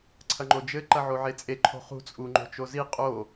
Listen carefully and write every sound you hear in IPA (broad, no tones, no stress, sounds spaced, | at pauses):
ǀʰ ɐ ŋ͡ǃ o d͡ʒ ɘ ǃ ɐ ʕ o ʕ e t͡sʼ e ǃʰ o̤ χ ṳ t͡sʼ u ŋ͡ǃ o̤ t͡ʃ o z i qʼ o